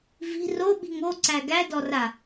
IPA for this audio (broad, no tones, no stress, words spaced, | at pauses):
vi̤ roɓi̤ŋ oǀæ ɡædɔra